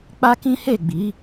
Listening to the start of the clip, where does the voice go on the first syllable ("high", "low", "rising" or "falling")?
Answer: high